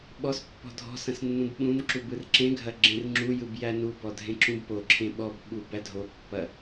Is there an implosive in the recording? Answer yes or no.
yes